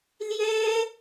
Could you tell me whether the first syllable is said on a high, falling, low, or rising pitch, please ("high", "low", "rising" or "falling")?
high